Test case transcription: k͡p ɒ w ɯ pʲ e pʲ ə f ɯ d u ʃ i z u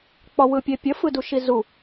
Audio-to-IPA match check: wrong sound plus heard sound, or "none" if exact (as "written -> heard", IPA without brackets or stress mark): none